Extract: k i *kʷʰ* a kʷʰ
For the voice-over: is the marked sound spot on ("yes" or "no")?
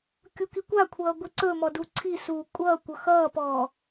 no